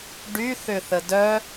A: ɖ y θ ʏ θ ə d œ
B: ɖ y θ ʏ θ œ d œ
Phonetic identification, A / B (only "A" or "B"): A